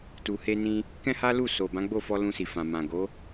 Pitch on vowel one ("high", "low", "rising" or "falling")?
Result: low